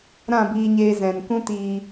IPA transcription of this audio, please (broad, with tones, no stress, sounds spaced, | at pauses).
ɾ ã˦˨ b iː˧ ɲ eː˧ z ɛ̃˨ n k ũ˦ t iː˧